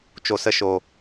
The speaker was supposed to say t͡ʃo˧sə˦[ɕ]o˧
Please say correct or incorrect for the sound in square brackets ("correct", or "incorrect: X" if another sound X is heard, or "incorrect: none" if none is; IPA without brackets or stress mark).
incorrect: ʃ